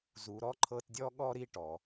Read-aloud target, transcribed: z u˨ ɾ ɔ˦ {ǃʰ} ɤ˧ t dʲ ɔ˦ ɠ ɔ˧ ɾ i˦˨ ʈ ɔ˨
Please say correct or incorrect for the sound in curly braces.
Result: correct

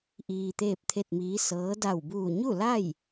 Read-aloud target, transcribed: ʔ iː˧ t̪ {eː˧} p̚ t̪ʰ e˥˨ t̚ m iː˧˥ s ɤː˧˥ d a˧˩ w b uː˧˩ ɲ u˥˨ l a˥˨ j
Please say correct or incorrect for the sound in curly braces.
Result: incorrect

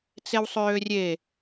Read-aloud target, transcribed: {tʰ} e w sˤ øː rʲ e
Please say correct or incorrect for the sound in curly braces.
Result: incorrect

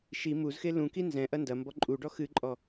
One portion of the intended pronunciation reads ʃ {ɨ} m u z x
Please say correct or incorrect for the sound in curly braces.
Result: incorrect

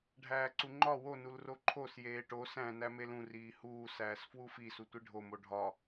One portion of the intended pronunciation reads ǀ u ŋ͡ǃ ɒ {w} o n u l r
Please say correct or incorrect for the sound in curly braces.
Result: correct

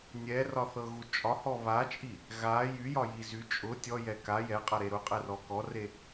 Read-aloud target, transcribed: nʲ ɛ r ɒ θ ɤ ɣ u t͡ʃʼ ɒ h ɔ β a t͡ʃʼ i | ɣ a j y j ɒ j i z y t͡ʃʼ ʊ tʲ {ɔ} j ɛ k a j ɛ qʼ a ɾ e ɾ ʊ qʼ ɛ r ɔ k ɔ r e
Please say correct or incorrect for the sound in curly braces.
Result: correct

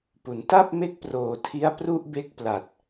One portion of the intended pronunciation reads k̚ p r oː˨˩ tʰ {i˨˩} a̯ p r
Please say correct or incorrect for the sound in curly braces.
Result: incorrect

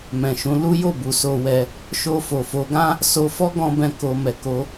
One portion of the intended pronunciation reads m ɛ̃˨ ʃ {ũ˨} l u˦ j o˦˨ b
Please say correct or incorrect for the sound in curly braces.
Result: incorrect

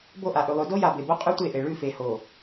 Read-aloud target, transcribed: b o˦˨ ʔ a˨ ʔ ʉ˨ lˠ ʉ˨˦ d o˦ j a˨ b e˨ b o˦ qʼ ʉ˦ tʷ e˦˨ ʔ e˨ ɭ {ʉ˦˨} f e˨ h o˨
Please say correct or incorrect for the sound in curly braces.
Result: correct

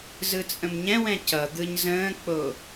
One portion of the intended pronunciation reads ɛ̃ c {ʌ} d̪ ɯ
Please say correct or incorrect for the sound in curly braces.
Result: correct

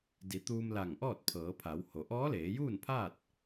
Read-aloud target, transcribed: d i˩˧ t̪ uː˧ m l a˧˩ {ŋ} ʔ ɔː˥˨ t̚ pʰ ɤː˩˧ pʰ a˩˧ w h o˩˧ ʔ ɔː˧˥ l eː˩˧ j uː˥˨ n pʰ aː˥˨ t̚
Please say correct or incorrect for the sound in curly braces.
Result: correct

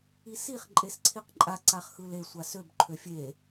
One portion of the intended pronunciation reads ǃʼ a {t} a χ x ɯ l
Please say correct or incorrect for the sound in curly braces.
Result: incorrect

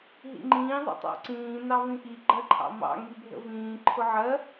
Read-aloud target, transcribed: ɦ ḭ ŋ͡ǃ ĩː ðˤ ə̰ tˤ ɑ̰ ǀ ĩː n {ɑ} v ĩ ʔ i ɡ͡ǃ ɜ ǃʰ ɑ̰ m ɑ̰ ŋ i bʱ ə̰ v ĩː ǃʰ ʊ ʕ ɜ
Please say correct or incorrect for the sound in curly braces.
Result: correct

